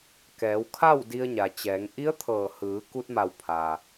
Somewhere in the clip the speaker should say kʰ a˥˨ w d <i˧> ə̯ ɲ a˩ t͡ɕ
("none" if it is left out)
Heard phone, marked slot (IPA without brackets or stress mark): i˧